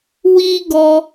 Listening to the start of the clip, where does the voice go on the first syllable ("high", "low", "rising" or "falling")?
high